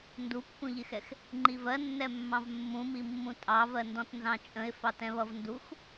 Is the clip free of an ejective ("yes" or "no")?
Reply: no